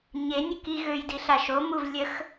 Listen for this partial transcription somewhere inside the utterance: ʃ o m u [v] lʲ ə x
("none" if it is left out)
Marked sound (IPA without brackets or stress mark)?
v